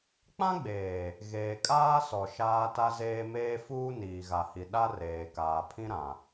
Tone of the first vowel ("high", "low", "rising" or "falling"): high